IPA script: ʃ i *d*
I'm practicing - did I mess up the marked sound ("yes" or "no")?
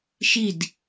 no